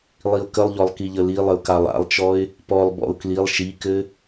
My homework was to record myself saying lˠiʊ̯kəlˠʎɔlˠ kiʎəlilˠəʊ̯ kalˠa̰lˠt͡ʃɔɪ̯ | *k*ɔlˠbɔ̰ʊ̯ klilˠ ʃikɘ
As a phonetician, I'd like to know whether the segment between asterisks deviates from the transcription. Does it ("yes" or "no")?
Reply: yes